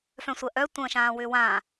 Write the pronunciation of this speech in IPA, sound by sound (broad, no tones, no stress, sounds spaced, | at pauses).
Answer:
f œ̃ sʷ ɜ ʔ œ tʷ ə̃ː ʃ ãː w ʏː w ãː